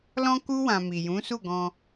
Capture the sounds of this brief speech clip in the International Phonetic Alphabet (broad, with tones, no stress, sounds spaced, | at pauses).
l ɔ̃˦ k u˦ w ã˧ m i˨ j ũ˨˦ s u˦˨ ɡ ɔ̃˧